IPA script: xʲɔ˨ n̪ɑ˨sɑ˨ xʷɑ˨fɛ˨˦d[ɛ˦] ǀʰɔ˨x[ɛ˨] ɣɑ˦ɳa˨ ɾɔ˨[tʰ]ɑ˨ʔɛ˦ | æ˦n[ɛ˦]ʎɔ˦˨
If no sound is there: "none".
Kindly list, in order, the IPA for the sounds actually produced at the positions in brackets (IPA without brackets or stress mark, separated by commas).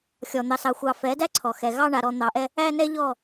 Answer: æ˦, ɛ˨, n̪, ɛ˦